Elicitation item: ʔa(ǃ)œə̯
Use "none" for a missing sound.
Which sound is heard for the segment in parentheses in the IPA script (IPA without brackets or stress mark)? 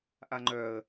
ŋ͡ǃ